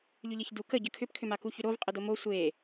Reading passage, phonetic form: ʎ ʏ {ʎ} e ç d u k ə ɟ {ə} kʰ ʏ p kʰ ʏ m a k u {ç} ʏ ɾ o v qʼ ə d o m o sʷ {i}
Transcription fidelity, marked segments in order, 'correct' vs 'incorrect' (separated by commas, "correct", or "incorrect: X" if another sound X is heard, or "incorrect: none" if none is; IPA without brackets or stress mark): correct, correct, correct, incorrect: e